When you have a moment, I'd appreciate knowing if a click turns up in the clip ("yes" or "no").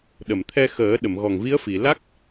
no